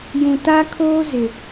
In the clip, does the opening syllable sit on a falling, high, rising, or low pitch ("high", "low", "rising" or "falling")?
low